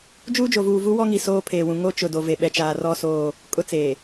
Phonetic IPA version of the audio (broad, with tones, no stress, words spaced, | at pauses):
d͡ʒuː˦d͡ʒo˨vuː˨vu˦ wɔ˦ŋi˨ soː˦pʰeː˨wũ˨ ŋo˦ t͡ʃʊ˨do˨ ve˨ ɓɛ˨t͡ʃaː˨rɔ˦˨ soː˦˨ | kʼʊ˦t͡seː˨